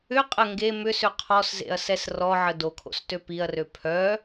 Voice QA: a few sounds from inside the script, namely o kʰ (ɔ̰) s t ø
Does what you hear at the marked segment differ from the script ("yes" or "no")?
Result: yes